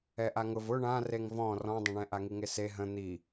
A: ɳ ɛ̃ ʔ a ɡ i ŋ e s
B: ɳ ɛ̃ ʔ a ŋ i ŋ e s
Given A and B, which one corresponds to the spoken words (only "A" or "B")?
B